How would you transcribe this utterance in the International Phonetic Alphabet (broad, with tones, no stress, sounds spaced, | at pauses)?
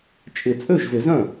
t͡ʃʼ ɪ˨˩˦ t͡sʼ ø˥˩ ʒ z ɪ˨˩˦ z œ̃˥˩